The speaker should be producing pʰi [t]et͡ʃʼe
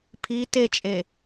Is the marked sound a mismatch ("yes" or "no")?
no